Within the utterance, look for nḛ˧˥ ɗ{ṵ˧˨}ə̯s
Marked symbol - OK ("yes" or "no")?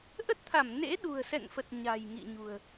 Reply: no